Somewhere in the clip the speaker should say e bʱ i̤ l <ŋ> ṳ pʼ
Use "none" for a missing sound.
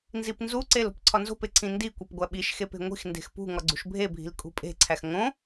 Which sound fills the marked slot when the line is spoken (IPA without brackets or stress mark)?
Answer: kʼ